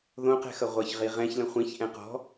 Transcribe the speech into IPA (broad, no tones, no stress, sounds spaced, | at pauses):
ð õ q ɛ̤ x ʌ ʁʷ ʌ ç ʁ i ʁ ɛ̃ ç l ə̃ χʷ ĩ ç ʔ ɛ̃ q ɔ̤